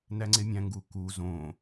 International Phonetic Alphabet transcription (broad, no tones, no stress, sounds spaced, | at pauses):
n æ ŋ͡ǀ e mʲ æ̃ ŋ ɡ u k u z õ